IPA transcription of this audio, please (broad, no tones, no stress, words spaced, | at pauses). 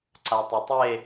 ǀatˤɵtˤe